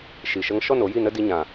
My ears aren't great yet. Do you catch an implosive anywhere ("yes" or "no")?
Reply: no